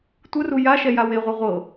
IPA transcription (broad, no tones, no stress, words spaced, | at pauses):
tʷɯru ja ʃɛjaweʁʷa ʁʷɤ